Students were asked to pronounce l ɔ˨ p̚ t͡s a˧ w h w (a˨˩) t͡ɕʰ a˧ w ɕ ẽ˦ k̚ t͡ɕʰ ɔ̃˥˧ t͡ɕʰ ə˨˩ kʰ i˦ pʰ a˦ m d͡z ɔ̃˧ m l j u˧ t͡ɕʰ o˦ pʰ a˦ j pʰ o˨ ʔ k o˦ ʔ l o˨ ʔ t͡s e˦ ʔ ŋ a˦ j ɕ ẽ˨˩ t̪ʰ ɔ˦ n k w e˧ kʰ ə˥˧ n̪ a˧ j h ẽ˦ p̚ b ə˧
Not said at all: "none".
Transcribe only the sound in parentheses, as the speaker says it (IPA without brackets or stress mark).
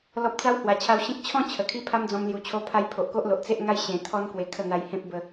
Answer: a˨˩